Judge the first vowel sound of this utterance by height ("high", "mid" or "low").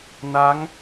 low